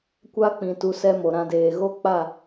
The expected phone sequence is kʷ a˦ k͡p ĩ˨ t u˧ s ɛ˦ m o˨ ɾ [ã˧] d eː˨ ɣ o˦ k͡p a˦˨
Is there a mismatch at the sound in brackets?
no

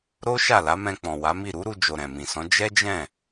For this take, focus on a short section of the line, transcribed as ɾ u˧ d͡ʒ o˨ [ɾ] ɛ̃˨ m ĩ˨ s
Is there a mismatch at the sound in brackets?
no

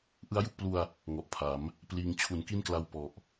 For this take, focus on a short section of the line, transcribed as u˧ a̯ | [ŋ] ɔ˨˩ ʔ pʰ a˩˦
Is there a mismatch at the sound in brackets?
no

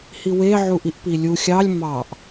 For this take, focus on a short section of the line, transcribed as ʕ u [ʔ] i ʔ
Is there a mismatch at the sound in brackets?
no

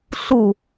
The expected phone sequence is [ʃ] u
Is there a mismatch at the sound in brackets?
yes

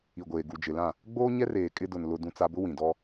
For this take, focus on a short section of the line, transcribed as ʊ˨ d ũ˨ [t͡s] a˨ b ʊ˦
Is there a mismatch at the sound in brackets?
no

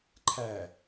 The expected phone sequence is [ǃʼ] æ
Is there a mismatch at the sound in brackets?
yes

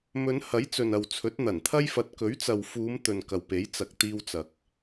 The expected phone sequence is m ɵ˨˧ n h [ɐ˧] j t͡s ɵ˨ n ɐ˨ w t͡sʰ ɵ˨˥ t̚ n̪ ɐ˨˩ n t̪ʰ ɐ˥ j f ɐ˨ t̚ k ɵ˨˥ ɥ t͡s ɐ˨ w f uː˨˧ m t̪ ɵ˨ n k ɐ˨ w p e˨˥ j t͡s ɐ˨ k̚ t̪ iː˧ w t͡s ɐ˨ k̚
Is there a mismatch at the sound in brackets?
yes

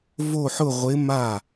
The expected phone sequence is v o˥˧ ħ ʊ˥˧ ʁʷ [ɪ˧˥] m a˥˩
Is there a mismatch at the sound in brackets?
no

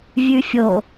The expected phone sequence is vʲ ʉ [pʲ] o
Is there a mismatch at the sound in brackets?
yes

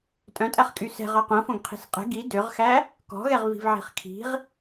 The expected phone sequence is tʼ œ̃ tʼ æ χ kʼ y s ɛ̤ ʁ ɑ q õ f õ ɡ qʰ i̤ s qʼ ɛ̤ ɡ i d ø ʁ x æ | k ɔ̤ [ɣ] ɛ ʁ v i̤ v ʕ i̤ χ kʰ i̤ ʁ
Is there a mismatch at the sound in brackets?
no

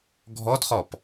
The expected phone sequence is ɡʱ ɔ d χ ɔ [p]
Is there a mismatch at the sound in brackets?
no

